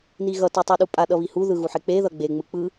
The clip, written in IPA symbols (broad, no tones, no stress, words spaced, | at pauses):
niɣʌ tutˤɯɗupʼa ɗʌβihu ðɯɣuħek͡pe ðʌɡ͡be ŋ͡mɯk͡pɯ